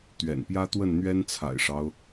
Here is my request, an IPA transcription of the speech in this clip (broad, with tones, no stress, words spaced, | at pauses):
t̪ɥɛ̰˨˩npjä˦t̪wə˥˨n n̪ɥɛ˦nt͡sʰa̰˨˩ɪ̯ʂɑ˦ʊ̯